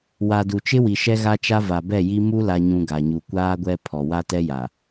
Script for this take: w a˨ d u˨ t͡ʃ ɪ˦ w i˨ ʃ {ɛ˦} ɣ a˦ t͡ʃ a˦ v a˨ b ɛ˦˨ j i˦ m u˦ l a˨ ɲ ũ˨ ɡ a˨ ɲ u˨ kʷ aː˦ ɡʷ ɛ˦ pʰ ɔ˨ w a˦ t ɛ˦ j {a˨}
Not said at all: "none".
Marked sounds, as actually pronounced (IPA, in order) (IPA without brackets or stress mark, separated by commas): ɛ˦, a˨